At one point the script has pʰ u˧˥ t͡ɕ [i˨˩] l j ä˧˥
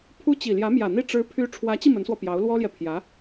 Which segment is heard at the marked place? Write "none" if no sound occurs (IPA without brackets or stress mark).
i˨˩